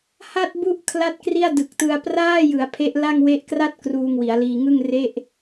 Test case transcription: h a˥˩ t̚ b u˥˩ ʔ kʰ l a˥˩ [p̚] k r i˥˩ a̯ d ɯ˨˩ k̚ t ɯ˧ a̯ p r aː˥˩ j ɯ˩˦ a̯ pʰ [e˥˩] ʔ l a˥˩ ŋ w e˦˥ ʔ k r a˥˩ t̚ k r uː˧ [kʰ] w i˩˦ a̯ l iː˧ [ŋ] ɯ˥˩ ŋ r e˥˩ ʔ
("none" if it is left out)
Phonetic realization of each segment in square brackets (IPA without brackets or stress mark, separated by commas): t̚, e˦˥, ŋ, ŋ